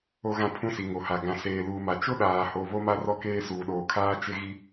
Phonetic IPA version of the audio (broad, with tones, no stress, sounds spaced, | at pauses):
o˦ ɣ ã˦ pʰ ũ˦ s i˨ ŋ o˨ h a˨ ɡ ã˨ s eː˨ l uː˨ m a˨ t͡ʃ ʊ˦ ɗ aː˨ h o˨ β o˦ m a˦ r ɔ˦ k eː˦ s uː˨ ɗ oː˨ kʰ aː˦ t͡ʃ ɪ˦ ɣ i˦